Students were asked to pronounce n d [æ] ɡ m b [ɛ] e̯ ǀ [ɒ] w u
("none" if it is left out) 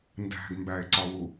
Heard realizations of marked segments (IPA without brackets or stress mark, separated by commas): æ̤, æ, ɒ